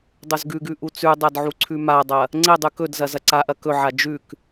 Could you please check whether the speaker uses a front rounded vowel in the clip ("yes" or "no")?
no